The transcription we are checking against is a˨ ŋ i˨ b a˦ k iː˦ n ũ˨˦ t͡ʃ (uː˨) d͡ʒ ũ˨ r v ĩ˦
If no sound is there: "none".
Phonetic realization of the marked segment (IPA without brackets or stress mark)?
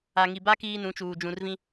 uː˨